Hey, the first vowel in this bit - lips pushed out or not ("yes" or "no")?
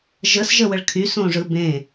no